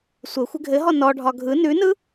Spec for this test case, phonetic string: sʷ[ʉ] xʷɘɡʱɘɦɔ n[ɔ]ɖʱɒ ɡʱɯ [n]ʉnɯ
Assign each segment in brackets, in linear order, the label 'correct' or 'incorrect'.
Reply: incorrect, correct, correct

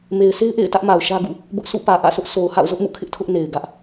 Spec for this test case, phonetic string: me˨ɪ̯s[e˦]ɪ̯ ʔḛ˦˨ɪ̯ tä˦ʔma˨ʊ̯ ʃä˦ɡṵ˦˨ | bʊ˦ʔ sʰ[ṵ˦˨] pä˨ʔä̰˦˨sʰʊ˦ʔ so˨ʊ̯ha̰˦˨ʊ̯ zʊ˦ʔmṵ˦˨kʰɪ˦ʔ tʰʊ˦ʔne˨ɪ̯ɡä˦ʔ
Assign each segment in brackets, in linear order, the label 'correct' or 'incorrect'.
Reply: correct, correct

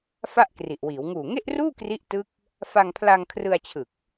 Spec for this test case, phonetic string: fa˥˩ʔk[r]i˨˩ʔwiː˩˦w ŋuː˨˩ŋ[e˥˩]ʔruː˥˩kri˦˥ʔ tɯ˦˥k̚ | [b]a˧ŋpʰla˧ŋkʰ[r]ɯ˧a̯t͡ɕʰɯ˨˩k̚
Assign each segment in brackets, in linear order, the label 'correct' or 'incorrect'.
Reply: correct, correct, incorrect, correct

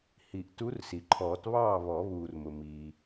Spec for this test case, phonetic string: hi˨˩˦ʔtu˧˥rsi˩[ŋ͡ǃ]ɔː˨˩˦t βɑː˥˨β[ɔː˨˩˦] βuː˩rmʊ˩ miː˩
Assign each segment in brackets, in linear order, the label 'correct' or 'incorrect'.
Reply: incorrect, incorrect

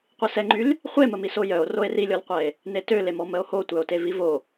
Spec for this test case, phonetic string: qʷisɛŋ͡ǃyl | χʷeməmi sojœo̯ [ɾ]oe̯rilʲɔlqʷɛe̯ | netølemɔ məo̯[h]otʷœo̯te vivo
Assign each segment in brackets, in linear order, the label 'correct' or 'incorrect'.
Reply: incorrect, correct

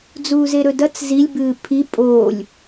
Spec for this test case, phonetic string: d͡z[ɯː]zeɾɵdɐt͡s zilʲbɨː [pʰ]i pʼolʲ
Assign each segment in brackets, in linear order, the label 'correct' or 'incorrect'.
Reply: incorrect, correct

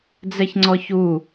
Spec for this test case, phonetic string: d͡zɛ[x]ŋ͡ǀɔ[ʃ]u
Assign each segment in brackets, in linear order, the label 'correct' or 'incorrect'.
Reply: incorrect, incorrect

